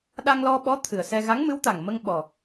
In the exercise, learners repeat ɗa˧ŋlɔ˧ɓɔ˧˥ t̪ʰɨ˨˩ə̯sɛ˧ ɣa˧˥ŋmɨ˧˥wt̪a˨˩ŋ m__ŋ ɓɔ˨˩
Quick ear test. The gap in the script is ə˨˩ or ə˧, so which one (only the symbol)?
ə˧